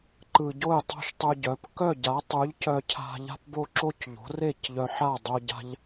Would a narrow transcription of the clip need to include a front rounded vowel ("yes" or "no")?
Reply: yes